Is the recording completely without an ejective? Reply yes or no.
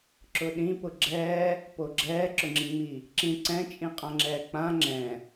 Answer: no